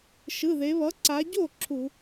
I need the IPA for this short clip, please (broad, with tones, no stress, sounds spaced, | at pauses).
ʃ ɯ˩˧˩ ð e˩˧ β ʌ˩˥ ǀ a˩˧ ɟ o˥˩ ǁʰ u˧˩˧